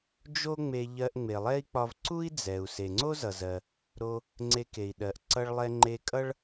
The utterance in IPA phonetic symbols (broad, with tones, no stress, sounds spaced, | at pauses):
d͡ʒ o˥ ŋ͡m e˧ ʎ ɜ˧ ʔ ŋ͡m e˩ lˠ ɛ˥ i̯ k͡p ɒ˧ v ǀ u˥ i̯ d͡z ɛ˩ u̯ s e˩ ŋ͡ǀ o˥ z ʌ˩ z ɜ˩ | ɾ o˧ | ŋ͡ǀ e˧ k e˩ i̯ ɗ ɜ˩ ʔ ǀ ʌ˧ ɭ lˠ ɛ˧ ŋ͡ǃ e˧ kʼ ʌ˥ ɭ